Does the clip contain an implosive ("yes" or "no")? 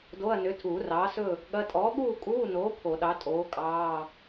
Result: yes